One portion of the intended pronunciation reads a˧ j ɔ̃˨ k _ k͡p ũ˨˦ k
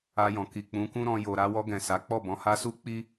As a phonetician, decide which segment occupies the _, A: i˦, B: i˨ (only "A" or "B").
B